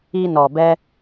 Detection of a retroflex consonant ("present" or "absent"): absent